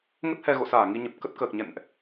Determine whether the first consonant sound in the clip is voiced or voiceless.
voiced